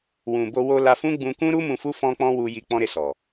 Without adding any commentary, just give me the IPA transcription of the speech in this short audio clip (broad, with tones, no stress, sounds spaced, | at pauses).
w ũ˨ b o˧ w o˧ l a˧ f ũ˦ ɡ͡b ũ˧ k ũ˦ ɾ u˦ m ũ˧ f u˦ f ɔ̃˦ k͡p ɔ̃˦ w u˧ j i˧ k͡p ɔ̃˦ ɾ e˦˨ s ɔ˨